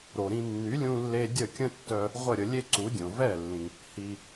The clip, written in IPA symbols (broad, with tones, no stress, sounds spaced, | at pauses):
ɾ o˩ ɾ ĩ˧ nː y˩˥ lʲ ũ˧ lː e˧ dʲ ə˥˩ kʲ ə̃˥ tː œ˧ | ʁʷ ə˥˩ ɾʲ ə˧ lʲ e˥ ǀ u˩˥ dʲ õ˩ v ɛ˥˩ lː ĩ˩ | h i˩